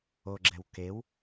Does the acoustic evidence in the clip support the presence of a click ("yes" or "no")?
yes